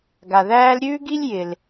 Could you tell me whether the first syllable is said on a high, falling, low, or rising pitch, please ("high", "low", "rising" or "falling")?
low